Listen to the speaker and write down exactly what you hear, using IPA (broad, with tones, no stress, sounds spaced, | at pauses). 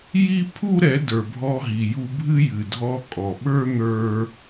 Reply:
j i˦ pʰ u˦ ɾ ɛ˨˦ d ə˞˨ bʱ ɔ˧ ɦ i˨ j u˧ bʱ ɨ˦ j ɨ˨ dʱ ɔ˧ kʼ ɔ˨ ɓ ə˞˦ n̪ ə˞˦